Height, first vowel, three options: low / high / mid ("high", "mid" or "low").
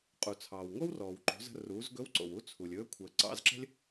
high